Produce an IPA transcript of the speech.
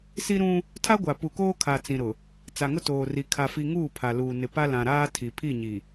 s i˦ ɾ ũ˦ | tʰ a˦ ɡʷ a˨ p u˨ k oː˦ kʰ a˨ t͡s ĩ˨ ɾ ʊ˨ | t͡s a˨ ŋ ʊ˦ t oː˨ r i˨ kʰ a˦ f i˦ ŋ uː˦˨ pʰ a˨ l uː˨ n ɪ˨ p a˦ l ã˨ ɾ aː˦ tʰ i˨ pʰ i˦˨ ɲ i˨

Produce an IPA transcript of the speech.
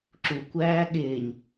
ǁ u kʷ æː ɠ ɪː ɲ

